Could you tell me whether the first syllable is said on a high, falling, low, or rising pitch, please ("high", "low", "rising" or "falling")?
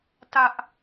high